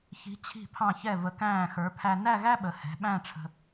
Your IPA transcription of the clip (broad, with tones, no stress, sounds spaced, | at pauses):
ç i̤˩˧ t͡ɕʰ i̤˧˩ pʰ ɑ̃˧˩ ç ɛ˧˩ v ə˩˧ k æ̃ː˧˩ x ə˞˩˧ pʰ æ˧ n æ˥˧ ɣ æ˥ ɓ ə˩˧ h ɛ̤˩˧ ɓ æ̃˥˧ ʈ͡ʂʰ ə̤˧